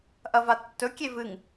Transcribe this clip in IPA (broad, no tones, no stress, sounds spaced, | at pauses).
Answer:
ʔ ɐ v a tː ɵ kʲ e v ɨ ŋ